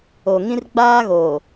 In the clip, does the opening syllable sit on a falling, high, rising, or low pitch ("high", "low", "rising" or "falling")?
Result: low